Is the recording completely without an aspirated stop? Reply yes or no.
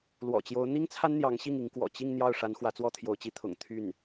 no